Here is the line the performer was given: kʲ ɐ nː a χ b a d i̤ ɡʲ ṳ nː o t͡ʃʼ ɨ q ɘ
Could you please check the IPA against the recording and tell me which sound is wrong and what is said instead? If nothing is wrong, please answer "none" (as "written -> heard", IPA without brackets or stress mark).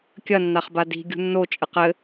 none